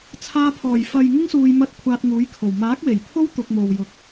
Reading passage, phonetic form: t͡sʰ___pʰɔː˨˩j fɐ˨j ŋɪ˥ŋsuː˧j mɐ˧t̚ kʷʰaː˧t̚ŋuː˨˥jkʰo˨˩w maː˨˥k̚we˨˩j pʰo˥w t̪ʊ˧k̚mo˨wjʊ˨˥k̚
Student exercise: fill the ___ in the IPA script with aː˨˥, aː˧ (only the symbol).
aː˧